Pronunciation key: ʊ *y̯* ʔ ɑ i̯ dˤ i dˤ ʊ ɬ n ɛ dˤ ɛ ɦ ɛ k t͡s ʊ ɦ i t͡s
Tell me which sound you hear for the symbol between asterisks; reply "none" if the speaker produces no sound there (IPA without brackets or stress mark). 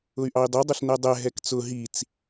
y̯